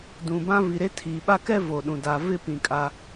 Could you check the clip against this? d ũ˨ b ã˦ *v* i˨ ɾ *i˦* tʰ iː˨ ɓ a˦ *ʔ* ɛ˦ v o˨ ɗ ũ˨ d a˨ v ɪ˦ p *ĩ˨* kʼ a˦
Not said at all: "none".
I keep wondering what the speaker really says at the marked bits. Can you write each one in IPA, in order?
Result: v, e˦, k, ĩ˨

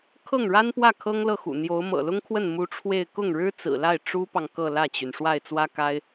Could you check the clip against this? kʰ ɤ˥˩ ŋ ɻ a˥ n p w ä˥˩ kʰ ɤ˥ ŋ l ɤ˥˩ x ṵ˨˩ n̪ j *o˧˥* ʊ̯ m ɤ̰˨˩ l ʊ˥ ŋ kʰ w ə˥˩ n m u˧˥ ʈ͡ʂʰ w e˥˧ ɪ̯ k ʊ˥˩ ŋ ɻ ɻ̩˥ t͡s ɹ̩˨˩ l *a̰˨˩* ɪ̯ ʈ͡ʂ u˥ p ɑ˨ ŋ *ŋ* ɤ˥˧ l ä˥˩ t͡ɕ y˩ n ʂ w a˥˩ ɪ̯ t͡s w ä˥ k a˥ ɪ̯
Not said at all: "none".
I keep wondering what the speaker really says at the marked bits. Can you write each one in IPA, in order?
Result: o˧˥, a˥˩, k

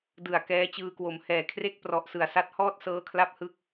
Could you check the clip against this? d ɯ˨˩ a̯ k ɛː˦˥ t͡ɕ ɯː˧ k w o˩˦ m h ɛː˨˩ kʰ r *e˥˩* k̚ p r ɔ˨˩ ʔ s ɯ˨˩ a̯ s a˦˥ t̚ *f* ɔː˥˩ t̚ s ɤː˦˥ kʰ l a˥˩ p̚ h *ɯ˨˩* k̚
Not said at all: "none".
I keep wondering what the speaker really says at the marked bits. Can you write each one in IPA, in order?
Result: e˥˩, h, ɯ˦˥

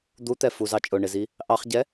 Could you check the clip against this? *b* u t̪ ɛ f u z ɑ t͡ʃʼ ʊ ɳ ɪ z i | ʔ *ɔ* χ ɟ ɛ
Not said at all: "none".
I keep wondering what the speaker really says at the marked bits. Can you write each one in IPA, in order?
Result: d̪, ɑ

